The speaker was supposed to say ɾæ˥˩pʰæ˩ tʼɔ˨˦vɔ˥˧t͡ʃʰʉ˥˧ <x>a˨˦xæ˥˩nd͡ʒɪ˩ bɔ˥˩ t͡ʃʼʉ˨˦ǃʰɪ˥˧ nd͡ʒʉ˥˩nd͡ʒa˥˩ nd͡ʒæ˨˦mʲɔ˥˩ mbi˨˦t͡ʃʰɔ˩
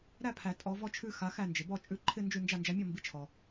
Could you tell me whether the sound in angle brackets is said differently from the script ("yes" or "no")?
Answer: no